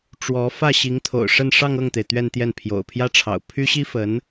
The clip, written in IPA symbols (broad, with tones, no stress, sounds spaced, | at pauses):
ʈ͡ʂ w ɔ˧˥ f ä˥˩ ɕ i˧˥ ŋ t̪ʰ o̰˨˩ ʊ̯ ʂ ə˥˧ n ʂ ɑ˥˧ ŋ ɤ˥˩ ŋ t̪ e˩ ɪ̯ t̪ ɥ ɛ˥˧ n t̪ j ɛ˥˩ n pʰ j o̰˨˩ ʊ̯ pʰ j ä˥ ʈ͡ʂʰ ɑ̰˨˩ ʊ̯ pʰ y˥ ɕ i˥ f ə˧˥ n